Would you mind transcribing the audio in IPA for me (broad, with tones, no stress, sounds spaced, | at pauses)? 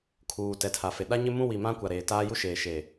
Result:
kʰ uː˨ t ɛ˨ tʰ a˨ f e˨ ɗ a˦ ɲ ɪ˦ m ũ˦ w i˨ m ã˦ kʷ a˨ ɾ eː˨ t aː˦ j u˦ ʃ eː˨ ʃ e˨